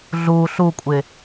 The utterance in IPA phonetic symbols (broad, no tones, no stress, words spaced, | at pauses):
ɮu ɬukʷʼɪ